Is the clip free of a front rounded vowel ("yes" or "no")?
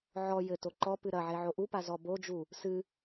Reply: yes